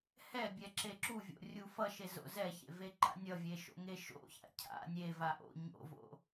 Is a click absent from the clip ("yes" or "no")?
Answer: no